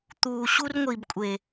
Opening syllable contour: low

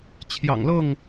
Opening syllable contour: low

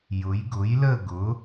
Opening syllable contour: rising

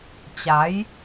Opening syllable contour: rising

